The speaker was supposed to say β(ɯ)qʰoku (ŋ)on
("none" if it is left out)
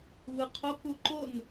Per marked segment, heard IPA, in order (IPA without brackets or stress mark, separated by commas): ɯ, ǃ